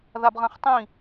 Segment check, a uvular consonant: present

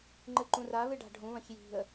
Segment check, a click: present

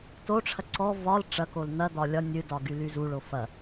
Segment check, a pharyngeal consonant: absent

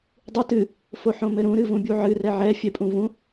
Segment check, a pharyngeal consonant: present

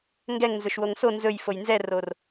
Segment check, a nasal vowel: absent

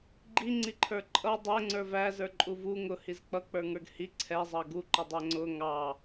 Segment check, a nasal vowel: absent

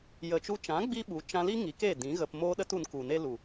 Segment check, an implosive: present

